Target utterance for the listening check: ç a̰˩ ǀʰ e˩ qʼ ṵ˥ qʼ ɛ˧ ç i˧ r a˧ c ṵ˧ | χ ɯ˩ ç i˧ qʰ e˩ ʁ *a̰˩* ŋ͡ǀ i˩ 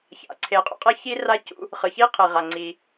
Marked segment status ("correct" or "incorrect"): incorrect